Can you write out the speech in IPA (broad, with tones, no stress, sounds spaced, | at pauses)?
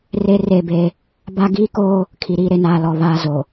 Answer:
r e˦ r e˦˨ b e˦ | b a˦ ɡ iː˦ k oː˦ | kʰ i˨ ɾ iː˦ ɾ e˨ n aː˨ l ɔ˨ β aː˦ z o˨